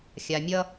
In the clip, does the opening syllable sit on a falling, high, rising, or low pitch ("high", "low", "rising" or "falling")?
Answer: low